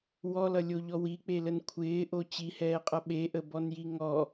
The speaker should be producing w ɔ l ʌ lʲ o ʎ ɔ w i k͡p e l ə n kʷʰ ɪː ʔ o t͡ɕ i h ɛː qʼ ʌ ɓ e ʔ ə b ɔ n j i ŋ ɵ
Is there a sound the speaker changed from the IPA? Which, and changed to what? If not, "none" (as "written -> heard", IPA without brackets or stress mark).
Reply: ɵ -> ɔ